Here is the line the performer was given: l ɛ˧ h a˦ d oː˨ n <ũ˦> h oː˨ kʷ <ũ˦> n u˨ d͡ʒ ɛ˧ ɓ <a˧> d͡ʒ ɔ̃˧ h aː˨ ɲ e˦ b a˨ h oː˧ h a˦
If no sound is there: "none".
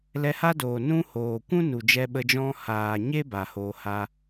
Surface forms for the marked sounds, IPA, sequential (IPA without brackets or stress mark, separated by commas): ũ˦, ũ˦, ə˧